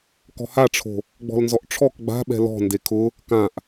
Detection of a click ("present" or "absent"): absent